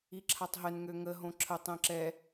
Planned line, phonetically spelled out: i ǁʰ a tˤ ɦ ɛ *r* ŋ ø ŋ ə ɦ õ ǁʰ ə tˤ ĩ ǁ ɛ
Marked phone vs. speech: incorrect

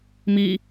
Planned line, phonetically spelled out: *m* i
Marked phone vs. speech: correct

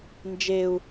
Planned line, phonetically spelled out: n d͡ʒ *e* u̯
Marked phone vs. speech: correct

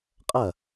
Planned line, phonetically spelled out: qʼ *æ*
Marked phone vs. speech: incorrect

